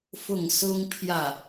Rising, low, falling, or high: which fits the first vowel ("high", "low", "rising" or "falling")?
falling